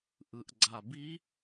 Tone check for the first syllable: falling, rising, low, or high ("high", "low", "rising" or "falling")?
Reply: low